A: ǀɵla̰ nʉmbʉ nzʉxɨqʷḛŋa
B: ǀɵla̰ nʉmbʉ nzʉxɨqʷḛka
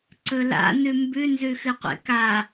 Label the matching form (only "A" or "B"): B